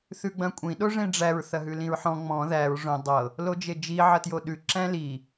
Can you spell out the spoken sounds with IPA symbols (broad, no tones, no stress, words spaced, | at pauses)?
θʉɡ͡bɐ̃kʷʼĩ ɗoʐẽɖ͡ʐæɹ θɐɦʉlĩɹħɔ̃ ŋ͡mɔ̃ ðæɹ ʐõ dˤɤ | lod͡ʒed͡ʒi ʕɐtjoɗʉ ǁæ̃li